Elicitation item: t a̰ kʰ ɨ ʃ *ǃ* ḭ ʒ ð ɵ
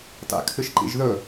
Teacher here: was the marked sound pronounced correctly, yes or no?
yes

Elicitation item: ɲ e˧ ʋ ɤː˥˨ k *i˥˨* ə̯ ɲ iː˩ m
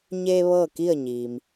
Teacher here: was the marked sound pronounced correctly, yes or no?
yes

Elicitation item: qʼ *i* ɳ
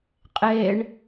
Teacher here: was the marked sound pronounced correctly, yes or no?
no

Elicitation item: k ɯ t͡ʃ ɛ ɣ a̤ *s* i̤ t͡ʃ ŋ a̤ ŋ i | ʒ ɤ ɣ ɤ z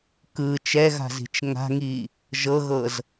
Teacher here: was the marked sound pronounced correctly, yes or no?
no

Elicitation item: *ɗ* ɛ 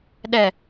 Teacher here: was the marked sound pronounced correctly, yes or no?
yes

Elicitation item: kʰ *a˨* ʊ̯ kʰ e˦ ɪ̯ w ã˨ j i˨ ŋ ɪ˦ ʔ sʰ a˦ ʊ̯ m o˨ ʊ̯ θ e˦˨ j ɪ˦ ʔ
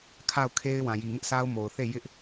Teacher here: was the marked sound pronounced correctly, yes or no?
no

